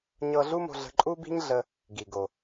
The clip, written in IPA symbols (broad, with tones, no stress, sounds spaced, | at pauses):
ɲ ɤ˧ ɮ u˥ m o̤˧ ɮ ə̤˧ ǃʼ u˥ b i̤˥ ɲ ɮ ə˧ | ɡ i˩ ɡ o˩